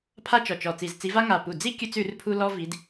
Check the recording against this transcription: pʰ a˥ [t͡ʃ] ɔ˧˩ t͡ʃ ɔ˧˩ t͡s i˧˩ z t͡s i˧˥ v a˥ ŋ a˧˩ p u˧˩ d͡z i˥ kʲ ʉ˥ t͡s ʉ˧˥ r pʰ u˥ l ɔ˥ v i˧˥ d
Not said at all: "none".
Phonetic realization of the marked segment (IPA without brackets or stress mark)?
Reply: t͡ʃ